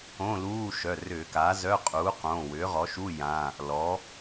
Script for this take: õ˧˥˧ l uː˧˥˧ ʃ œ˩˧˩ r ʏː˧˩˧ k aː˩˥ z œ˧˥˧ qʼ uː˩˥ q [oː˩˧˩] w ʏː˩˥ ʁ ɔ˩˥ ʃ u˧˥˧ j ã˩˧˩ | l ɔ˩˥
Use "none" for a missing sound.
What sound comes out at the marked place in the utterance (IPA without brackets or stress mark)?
õː˩˧˩